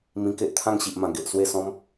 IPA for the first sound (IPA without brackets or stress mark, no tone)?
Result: m